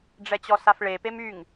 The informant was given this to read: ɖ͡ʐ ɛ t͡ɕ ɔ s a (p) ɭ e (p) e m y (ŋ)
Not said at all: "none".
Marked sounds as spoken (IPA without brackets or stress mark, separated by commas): f, p, ŋ